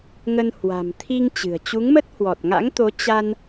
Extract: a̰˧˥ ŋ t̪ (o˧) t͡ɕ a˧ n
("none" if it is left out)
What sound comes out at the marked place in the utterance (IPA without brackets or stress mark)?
o˨˦